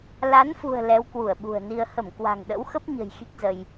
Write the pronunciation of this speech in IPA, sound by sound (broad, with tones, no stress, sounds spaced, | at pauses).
l a˨˦ n f ṳ˨˩ ə̯ l ɛ˨˦ w k w u˧˩ ə̯ ɓ ṳ˨˩ ə̯ n i˧ ə̯ h ə˧˩ m k w a̤˨˩ ŋ ɗ ə̰˧˥ w x ə˦˥ p̚ ɲ ə̤˨˩ j x i˦˥ k̚ z ə˧ j